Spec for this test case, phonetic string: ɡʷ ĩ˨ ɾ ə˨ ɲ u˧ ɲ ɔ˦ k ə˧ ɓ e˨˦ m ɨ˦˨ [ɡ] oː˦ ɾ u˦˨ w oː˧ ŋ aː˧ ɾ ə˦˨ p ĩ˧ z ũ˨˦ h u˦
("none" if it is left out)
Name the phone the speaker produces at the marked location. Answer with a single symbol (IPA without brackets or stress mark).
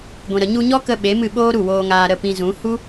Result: ɓ